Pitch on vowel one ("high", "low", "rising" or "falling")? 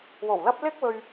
low